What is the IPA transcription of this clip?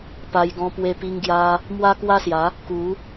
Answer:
pa˧jɡɔ̃˧pwe˧ pi˧ŋɡja˧ | mwa˦kwa˦sja˨˦ | ku˨˦

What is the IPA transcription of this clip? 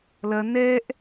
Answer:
lɐ nɛʔ

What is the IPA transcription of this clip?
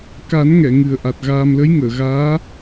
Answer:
ka˨˩˦nŋɛ˨˩˨ ŋɨ˨˩ə̯ʔa˨˩t̚ɣaː˧m lə˧˥jŋəː˨˩˨ɣaː˧˥

